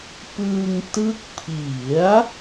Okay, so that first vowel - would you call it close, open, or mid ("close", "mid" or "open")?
close